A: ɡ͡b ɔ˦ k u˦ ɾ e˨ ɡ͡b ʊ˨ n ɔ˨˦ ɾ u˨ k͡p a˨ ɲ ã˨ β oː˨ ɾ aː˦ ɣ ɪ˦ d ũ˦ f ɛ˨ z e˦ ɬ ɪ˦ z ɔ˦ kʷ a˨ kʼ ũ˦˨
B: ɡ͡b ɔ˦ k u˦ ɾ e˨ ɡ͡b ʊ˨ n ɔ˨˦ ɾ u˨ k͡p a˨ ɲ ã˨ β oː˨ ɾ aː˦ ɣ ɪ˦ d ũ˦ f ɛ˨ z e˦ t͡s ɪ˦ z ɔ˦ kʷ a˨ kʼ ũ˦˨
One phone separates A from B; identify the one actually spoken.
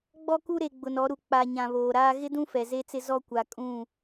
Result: B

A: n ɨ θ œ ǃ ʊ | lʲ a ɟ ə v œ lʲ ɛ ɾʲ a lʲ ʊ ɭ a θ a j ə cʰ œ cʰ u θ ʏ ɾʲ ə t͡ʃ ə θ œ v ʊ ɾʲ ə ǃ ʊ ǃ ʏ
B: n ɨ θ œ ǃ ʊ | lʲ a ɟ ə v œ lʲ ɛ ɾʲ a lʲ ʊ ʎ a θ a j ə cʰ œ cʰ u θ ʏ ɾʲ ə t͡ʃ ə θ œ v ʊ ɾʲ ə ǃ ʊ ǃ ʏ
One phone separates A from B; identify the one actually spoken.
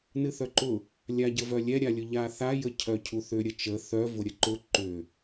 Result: B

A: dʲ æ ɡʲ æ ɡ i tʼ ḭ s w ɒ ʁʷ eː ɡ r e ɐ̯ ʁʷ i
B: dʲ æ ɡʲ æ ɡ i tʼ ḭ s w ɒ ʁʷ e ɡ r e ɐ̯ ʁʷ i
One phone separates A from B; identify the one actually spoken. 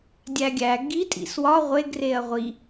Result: B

